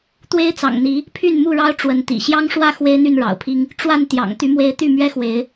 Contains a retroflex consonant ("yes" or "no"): yes